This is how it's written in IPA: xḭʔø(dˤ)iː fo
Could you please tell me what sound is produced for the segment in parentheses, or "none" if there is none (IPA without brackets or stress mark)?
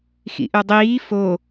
dˤ